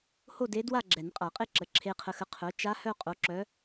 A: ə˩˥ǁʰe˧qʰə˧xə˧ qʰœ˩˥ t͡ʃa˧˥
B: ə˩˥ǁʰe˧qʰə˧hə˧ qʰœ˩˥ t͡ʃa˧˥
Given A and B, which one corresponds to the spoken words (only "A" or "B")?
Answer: A